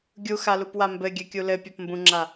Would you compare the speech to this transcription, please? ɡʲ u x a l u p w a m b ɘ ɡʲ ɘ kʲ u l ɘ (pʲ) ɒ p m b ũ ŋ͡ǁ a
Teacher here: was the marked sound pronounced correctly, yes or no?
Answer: yes